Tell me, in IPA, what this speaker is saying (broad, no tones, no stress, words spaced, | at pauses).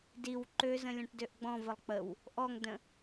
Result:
diw ǃøzə̃ lʲɔ̃ʈdøʔɡ͡bɔ̃vəlˠ k͡pəw | ʔɔŋdə̃